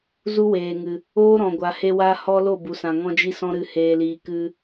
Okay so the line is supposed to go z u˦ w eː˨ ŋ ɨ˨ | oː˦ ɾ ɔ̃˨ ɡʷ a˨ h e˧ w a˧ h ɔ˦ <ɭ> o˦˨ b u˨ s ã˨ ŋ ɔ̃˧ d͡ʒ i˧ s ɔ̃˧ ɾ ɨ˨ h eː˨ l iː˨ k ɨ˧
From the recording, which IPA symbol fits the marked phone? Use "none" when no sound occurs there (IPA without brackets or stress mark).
l